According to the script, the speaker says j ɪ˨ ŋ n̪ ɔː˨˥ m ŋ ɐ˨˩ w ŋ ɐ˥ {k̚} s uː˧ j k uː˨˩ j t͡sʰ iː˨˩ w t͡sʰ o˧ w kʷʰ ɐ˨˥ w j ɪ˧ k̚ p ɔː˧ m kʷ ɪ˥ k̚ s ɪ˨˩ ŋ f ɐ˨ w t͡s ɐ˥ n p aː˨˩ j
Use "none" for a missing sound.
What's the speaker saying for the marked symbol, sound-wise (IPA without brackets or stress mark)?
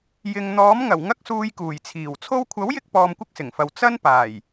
k̚